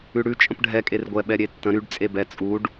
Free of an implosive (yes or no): no